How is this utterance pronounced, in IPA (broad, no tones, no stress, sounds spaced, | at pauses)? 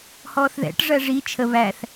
h ɔː θ ð ɛ̰ ʈ ʐ ɜ ʐ i t͡ʃʰ ə β æ θ